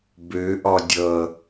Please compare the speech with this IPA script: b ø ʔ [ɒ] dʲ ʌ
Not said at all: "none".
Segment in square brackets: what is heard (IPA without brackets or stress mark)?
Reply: ɒ